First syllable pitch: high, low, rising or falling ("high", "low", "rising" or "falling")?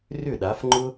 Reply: falling